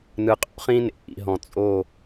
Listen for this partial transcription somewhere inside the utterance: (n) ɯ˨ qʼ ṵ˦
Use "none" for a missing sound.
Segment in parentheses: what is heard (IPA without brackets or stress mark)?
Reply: n